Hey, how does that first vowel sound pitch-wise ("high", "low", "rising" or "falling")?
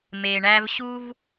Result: low